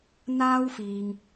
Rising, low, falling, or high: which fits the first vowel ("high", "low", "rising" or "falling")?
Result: high